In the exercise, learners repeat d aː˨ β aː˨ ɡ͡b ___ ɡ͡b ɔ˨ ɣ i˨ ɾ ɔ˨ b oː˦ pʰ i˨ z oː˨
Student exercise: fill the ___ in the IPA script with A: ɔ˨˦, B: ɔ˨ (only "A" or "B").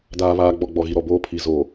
B